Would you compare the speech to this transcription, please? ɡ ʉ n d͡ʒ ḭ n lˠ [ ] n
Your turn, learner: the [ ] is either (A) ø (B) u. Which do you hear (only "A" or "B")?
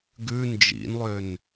A